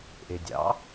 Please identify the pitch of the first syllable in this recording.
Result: low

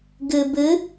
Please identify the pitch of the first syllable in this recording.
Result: low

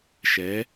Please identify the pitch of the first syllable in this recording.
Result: rising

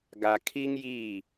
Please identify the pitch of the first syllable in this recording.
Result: low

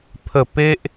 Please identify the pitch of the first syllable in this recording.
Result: falling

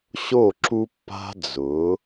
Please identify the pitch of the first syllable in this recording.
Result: falling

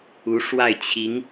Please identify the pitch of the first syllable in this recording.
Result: rising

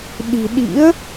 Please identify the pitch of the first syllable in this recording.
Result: low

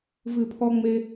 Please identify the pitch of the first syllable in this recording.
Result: low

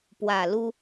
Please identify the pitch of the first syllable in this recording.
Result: low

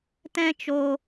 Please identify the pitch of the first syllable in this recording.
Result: high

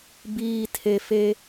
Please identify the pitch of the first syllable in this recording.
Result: low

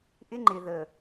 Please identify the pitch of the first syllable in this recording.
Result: high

